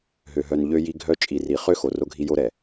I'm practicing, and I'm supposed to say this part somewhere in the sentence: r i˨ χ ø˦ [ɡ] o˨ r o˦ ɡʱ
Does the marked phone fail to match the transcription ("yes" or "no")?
yes